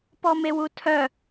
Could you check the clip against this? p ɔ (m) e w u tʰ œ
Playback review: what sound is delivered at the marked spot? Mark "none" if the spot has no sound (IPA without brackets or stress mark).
m